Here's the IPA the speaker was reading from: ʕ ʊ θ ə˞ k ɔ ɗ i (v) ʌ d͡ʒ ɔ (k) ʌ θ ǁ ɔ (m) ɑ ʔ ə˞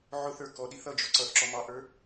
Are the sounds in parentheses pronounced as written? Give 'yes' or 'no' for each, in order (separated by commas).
no, no, yes